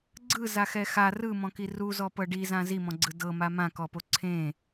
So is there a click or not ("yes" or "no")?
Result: yes